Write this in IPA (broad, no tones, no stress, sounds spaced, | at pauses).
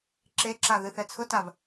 ǁ e ǁ a ð ɨ θ ɛ t͡sʰ ʊ t a v